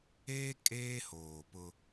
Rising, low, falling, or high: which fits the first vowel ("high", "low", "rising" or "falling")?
high